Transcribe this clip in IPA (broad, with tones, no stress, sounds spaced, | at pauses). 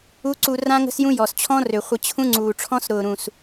u˦ ǀ u˧ r ã˦ ŋ ə̤˦ s j ũ˦ j ɔ˨ s t͡ɕʰ ɔ̃˦ r ø˨ χʷ ə˧ t͡ɕʰ ũ˦ ŋ͡ǀ uː˨ ʈ͡ʂʰ ɔ̃˦ s ɾ ʊː˨ ɾ ũ˨ s